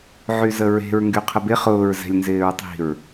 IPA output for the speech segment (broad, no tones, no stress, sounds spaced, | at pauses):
ʕ y z ə ɹ e̤ ɹ ŋ ɡ y qʰ ə b ɪ χ ʊː ɹ z ɛ̤ lʲ n z ɪː ɹ tˤ i̤ ɹ